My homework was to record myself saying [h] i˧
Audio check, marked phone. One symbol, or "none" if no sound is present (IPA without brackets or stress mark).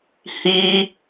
h